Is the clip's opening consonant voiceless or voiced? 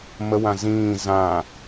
voiced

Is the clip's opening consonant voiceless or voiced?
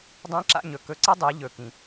voiced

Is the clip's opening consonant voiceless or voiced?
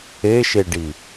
voiceless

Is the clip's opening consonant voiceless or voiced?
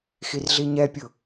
voiceless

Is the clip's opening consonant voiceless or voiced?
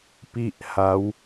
voiceless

